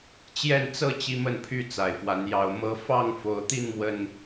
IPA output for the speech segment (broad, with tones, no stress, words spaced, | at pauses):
t͡ɕjɛ˥˨nt͡sɤ˥˨ t͡ɕi˦mə˥˨npʰy˥˨ t͡sa˨˩ɪ̯fwa˨˦njɑ˨˦ʊ̯ mɤ˨˦fɑ˥˨ŋ fo˨˦ʊ̯t̪i˥˨n mwə˨˩n